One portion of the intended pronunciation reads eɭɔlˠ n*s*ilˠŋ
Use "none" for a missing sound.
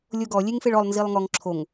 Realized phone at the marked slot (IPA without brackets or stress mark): z